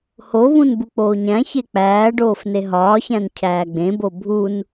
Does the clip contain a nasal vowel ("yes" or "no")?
yes